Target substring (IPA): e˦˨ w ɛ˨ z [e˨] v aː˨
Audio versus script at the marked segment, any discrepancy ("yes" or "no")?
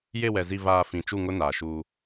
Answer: yes